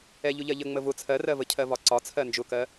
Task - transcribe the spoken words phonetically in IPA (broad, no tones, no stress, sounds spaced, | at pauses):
ɛ ʎ ʊ ʎ ɜ ʎ ə ŋ͡m ə v ʊ t͡sʰ ɜ r ɜ v ə cʰ ɜ v ɒ ǀ ɒ t͡sʰ ɜ n d͡ʒ ʊ k ɜ